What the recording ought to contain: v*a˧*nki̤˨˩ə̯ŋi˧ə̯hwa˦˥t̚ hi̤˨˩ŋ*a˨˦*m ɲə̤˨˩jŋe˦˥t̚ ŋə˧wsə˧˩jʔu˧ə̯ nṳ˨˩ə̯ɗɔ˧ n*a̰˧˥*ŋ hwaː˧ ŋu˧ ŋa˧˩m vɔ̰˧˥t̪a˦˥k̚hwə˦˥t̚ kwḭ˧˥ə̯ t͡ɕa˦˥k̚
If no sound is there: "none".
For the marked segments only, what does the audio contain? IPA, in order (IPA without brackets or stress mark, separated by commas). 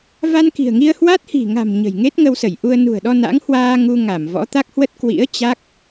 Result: a˧, a̤˨˩, a̰˧˥